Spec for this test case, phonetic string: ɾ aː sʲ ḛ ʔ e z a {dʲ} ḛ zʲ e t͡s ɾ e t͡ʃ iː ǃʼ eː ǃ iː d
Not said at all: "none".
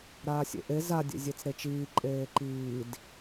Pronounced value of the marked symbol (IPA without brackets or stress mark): dʲ